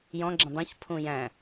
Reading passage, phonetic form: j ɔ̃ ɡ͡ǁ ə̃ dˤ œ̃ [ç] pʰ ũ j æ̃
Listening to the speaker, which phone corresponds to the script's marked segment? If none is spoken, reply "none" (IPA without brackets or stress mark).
ç